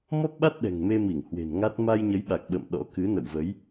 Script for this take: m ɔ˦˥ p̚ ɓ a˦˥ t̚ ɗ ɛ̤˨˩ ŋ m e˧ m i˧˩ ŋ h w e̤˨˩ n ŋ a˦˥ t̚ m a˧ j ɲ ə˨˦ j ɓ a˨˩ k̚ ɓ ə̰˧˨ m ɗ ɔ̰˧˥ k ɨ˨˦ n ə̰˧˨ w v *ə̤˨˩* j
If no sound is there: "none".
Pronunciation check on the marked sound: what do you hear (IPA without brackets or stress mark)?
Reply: ə˨˦